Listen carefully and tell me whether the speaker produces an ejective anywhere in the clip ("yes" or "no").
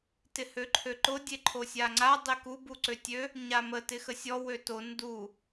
no